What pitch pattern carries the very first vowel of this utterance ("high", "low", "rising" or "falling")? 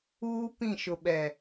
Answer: high